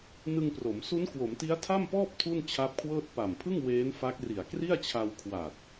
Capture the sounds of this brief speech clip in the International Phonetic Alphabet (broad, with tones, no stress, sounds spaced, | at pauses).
n ɯ˧ ŋ p r o˩˦ m s u˦˥ n k w o˩˦ m t i˦˥ a̯ tʰ a˥˩ m p ɔː˥˩ p̚ tʰ u˥˩ n t͡ɕʰ a˦˥ p̚ kʰ w ɤː˥˩ t̚ p a˨˩ m pʰ ɯ˥˩ ŋ w eː˦˥ n f a˦˥ k̚ r i˨˩ a̯ k r i˥˩ a̯ t͡ɕʰ a˧ w kʰ w a˨˩ t̚